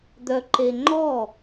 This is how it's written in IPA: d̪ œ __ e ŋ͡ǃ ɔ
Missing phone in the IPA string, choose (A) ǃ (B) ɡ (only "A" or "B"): A